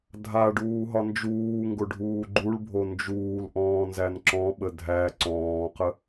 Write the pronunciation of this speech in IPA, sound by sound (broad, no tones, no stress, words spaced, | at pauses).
dʱa ɖuːɦɒnd͡ʒuː ŋɡoɖʱuːɡ͡ǃuɭbʱo nd͡ʒuːlʔɔ̃ː nzænǁɔ̃ɓə dʱæ ǀɔ̃ːqə